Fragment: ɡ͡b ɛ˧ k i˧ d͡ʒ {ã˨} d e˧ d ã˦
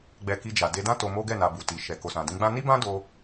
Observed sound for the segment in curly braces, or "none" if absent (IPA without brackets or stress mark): a˨